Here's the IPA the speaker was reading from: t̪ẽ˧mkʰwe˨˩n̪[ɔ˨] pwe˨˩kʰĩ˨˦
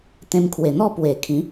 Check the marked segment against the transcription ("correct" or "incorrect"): incorrect